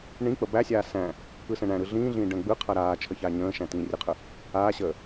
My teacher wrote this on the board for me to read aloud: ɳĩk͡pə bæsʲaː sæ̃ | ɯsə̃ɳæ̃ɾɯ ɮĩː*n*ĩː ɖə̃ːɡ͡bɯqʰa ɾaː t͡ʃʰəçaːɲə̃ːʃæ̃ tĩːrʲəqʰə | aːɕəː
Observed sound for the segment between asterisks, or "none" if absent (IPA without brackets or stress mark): ɮ